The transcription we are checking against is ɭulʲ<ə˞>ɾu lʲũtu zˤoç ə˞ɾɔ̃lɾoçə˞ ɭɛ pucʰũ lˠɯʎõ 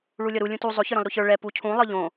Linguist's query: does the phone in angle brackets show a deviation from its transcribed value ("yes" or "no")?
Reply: yes